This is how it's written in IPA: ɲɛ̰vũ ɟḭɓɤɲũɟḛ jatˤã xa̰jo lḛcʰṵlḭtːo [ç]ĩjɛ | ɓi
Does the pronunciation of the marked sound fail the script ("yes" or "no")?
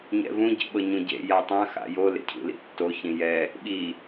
no